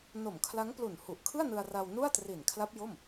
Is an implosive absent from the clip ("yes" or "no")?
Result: yes